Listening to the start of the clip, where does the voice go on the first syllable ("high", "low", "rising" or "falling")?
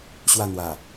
falling